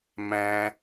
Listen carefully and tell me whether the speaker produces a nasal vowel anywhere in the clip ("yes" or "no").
yes